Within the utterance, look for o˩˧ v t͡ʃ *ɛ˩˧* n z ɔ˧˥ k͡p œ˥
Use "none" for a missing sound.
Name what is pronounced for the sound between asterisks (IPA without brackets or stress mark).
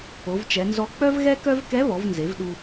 ɛ˩˧